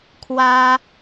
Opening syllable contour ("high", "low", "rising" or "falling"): high